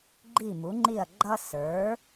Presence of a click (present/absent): present